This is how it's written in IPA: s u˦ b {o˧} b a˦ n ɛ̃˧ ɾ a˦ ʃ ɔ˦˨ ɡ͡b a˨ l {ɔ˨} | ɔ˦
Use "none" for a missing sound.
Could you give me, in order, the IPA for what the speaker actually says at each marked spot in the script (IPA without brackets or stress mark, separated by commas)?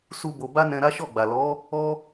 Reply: o˧, ɔ˨˦